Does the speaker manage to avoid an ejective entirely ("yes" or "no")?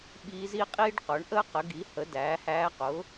no